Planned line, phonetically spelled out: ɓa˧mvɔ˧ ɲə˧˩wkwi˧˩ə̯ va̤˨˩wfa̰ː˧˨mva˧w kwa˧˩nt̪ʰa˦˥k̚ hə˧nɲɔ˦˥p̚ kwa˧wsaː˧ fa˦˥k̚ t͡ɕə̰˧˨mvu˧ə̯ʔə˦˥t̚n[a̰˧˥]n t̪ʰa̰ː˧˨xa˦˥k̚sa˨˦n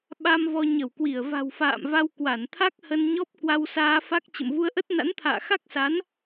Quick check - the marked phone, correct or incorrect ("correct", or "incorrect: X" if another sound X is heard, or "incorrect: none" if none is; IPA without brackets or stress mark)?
correct